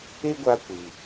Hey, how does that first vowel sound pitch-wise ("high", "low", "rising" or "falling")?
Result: high